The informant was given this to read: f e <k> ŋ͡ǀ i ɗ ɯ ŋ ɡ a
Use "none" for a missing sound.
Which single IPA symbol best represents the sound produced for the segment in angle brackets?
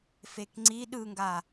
k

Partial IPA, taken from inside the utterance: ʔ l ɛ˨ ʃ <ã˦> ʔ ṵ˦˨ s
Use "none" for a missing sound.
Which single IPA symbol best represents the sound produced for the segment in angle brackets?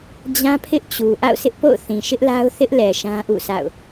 ã˦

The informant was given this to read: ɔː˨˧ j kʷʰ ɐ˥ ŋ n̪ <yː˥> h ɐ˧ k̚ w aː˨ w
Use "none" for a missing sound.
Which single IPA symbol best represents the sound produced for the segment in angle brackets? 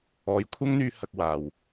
yː˧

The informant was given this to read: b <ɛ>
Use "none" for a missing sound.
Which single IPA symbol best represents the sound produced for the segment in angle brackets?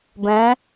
ɛ̃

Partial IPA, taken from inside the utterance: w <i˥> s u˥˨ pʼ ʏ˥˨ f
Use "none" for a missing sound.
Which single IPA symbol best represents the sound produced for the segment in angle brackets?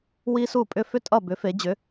i˥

